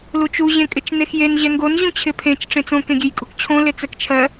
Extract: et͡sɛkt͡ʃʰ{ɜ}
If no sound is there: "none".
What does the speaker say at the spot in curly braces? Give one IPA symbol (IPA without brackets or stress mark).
ɜ